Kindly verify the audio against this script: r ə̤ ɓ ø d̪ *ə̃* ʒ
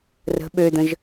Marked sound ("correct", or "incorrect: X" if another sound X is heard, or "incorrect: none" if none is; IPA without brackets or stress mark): correct